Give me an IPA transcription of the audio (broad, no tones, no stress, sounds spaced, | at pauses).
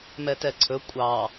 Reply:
m ɛ t ɛ ǀʰ ɵ kʷʼ ɑ